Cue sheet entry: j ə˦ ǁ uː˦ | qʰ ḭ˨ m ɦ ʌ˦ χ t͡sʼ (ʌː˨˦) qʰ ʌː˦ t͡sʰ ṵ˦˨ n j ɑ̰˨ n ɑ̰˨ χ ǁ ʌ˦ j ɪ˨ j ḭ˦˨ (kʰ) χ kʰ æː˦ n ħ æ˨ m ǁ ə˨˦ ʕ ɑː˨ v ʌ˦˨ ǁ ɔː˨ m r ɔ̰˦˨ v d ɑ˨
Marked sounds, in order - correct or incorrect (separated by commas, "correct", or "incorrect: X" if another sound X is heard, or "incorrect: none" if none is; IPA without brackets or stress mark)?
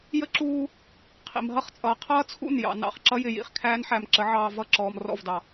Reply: incorrect: ʌː˨, incorrect: none